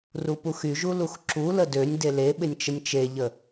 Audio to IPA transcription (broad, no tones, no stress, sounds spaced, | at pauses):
r u p u x y ʒ u l u x ǁ u l ə d ø nʲ d e l e ɓ ɪ nʲ t͡ʃ ə nʲ t͡ʃ e ʎ ə